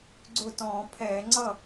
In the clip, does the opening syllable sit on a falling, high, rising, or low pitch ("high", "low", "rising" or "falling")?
falling